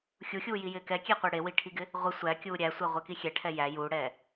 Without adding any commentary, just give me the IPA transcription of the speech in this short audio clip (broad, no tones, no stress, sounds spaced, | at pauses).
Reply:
xʲ u xʲ uː j i j ɪː k ɛ kʲ e qʷ ɪː ɽ e w i ʈʰ i ɡ ɪ | ʁʷ ɪ sʷ æ kʲ uː ɾʲ æ sʷ æ ʁʷ ɛ k i xʲ ɛ ʈʰ ɛ j æ j uː ɽ ɛː